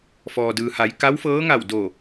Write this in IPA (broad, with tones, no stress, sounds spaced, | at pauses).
f ɔː˩ d ɯː˩ h a˩˧ j k a˧˥ w f ɤː˧˥ ŋ a˧˩ w d o˧˩